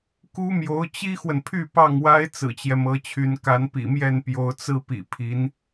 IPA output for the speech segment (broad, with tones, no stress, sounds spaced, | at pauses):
k u˥ m j o˧˥ ʊ̯ t͡ɕ i˥ x w ə˨ n pʰ y˥˧ p ɑ˥˩ ŋ w a˥ ɪ̯ t͡s ɹ̩˨˩ t͡ɕ j ɛ˦ m ɤ˧˥ t͡ɕʰ y˧˥ n k a˧˥ n p ḭ˨˩ m j ɛ˥˩ n p j o˧˥ ʊ̯ t͡s ɹ̩˥ p ḭ˨˩ pʰ i˧˥ n